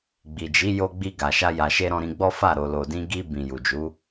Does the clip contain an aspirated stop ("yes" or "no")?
no